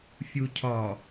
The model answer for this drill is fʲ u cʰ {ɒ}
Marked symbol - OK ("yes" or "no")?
yes